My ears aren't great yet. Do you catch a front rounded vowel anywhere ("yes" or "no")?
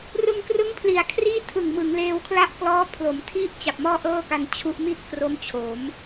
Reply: no